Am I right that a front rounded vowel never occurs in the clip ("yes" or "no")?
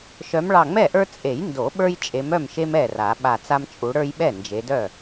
no